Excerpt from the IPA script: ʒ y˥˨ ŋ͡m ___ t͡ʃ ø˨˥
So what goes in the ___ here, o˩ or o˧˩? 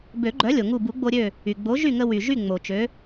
o˩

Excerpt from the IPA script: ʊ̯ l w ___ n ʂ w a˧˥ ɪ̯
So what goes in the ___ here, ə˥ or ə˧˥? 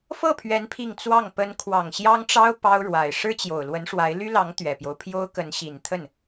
ə˧˥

